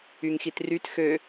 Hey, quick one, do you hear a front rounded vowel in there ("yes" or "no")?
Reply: yes